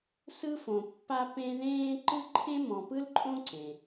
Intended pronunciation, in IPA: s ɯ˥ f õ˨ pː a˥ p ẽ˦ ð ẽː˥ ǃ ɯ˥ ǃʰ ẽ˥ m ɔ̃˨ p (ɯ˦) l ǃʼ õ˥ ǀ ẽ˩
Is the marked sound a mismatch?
yes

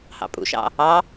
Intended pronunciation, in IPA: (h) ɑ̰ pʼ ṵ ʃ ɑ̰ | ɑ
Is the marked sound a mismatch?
no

